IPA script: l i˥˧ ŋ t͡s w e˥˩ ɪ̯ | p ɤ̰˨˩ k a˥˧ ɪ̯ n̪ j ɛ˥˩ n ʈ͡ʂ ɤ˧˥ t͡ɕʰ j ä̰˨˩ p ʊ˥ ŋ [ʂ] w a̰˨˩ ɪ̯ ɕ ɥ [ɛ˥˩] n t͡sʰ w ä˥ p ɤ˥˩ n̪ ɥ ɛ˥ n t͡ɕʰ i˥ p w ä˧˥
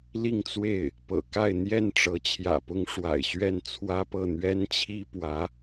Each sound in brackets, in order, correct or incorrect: correct, correct

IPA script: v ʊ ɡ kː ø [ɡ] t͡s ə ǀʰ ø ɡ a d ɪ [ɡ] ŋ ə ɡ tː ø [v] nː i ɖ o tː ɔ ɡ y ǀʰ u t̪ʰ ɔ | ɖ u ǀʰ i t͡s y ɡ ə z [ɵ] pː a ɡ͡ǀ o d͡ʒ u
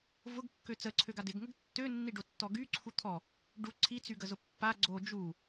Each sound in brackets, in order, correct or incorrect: incorrect, correct, incorrect, incorrect

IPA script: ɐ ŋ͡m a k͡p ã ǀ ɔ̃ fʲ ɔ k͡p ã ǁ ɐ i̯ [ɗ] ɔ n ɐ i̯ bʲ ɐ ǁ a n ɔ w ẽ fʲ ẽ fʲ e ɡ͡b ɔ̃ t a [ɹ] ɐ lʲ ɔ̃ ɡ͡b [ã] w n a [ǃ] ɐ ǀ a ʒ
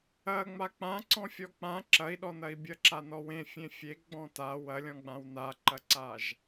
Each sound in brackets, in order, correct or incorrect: correct, incorrect, correct, correct

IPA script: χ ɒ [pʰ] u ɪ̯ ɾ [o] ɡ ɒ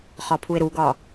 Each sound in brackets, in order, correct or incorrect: correct, incorrect

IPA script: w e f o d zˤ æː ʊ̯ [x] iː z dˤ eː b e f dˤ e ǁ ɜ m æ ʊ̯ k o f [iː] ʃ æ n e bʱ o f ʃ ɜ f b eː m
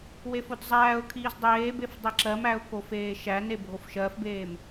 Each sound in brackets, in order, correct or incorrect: incorrect, incorrect

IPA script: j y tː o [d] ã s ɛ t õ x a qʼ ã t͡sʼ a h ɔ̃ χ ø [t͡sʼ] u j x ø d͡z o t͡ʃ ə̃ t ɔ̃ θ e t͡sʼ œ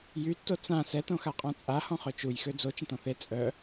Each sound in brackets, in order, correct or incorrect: incorrect, incorrect

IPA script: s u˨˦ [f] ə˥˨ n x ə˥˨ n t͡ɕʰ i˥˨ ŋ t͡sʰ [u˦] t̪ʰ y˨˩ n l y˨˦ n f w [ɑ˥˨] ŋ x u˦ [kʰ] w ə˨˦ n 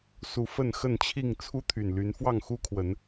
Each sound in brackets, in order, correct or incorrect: correct, correct, correct, correct

